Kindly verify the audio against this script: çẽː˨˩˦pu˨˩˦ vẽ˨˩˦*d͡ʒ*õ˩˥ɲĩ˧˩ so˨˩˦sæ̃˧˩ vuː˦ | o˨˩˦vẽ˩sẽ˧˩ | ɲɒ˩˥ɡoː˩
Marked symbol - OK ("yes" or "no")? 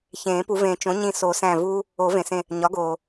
no